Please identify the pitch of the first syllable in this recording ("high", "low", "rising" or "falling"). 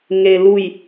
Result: low